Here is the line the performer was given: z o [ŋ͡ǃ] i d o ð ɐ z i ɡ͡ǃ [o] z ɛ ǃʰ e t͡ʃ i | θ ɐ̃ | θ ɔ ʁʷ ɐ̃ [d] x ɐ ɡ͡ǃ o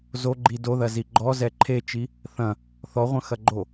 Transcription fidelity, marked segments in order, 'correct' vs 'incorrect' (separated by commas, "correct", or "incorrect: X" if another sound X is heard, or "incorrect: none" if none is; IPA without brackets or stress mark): incorrect: ɡ͡ǃ, incorrect: ɔ, incorrect: none